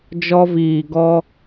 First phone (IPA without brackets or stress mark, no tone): d͡ʒ